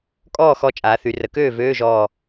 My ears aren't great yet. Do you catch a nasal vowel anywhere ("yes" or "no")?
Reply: no